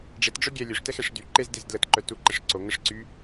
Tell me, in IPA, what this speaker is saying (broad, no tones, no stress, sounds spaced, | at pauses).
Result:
ɖ͡ʐ e t ɖ͡ʐ œ ɡʲ ɛ lʲ ø ʂ t ɛ x ɛ ʂ d y ǃ e z d e z d l ə t ǃ œ t u ǃ ɛ ʂ ǀ o ŋ ə ʂ ǀ y